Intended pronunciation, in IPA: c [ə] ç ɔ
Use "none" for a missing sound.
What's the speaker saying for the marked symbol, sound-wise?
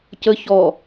ə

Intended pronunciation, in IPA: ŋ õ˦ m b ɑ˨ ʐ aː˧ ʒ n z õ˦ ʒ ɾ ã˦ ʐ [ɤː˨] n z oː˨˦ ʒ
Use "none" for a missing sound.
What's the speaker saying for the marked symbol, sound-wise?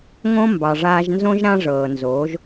ɤː˨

